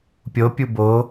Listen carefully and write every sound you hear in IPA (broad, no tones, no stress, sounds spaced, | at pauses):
pʲ o pʲ u b o